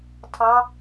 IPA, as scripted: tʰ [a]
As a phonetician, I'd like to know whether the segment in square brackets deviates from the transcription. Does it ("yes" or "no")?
yes